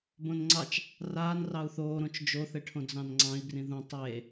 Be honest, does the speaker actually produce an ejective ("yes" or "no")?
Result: no